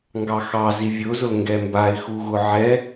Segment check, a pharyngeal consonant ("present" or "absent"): present